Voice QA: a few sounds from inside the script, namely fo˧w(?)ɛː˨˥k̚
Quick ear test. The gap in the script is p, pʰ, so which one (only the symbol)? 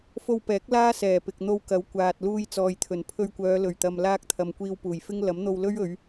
p